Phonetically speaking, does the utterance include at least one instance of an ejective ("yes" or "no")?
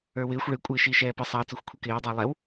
yes